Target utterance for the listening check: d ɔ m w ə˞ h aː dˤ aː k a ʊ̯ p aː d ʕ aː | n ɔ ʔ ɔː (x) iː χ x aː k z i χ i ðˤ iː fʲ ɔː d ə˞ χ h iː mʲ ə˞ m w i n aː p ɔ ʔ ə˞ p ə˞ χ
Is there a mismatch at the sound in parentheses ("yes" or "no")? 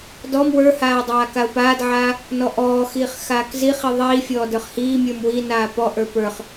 no